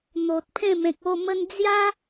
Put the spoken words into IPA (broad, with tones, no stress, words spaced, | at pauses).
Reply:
n̪o˨t̚ pʰẽ˥˧mẽ˨k̚o˥˧ mə˧nd͡zja˦